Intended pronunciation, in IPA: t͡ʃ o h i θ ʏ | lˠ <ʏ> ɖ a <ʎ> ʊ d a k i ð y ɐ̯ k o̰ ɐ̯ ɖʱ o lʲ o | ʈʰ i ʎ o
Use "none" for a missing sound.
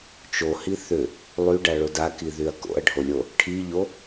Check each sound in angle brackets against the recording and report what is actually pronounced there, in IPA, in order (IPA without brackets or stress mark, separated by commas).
y, ɭ